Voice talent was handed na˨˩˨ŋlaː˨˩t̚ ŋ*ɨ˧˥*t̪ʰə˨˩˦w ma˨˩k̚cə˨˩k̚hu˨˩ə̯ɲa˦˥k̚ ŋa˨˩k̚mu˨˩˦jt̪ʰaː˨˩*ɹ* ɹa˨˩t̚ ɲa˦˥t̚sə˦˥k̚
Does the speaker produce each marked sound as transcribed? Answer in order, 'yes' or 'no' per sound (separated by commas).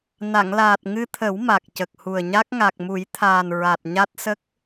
no, no